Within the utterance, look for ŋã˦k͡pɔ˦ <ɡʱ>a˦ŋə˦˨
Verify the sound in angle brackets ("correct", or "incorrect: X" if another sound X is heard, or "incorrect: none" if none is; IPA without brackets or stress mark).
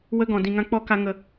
incorrect: k